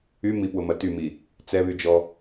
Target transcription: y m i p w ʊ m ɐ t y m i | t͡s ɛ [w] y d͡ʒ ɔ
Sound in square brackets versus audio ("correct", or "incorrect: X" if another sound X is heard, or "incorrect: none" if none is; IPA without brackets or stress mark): incorrect: β